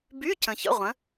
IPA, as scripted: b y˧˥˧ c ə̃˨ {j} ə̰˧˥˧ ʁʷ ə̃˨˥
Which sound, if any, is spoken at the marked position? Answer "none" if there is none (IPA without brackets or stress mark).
ç